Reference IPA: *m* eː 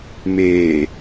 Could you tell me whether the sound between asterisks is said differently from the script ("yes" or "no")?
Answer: no